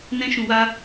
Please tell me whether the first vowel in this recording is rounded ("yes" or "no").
no